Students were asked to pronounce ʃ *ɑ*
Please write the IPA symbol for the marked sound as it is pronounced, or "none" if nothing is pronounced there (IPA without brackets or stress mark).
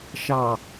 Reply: ɑ